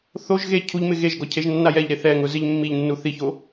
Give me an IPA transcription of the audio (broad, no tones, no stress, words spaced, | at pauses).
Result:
θoʒ ɣe cʰuʎmɪ ɣeʒɡɔ cʰeʒnːajɛʎɾe θɛŋʊ zɪʎmːiʎnːu θiço